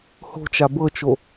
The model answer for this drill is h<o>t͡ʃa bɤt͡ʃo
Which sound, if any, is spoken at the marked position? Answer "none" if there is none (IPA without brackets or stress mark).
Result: o̤